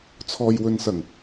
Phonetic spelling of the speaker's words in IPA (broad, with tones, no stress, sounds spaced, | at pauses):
t͡sʰ ɔː˨ j w ɵ˨ n s ɐ˨˩ ŋ